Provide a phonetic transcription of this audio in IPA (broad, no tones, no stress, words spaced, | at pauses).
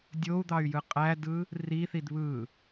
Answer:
dʲou̯d̪ɑy̯jɯ qʼædɯ | riθid βɯ